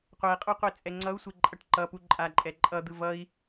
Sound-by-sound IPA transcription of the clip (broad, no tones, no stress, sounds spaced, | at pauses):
qʷ ɛ i̯ qʼ o qʷ i t͡sʼ ɛ ŋ͡ǀ ʌ u̯ sʷ e ǃʼ ʌ ʈ ǃ ʌ p u ǃʼ a ǃʼ ɛ ǃʼ ʌ d̪ ɯ v ʌ i̯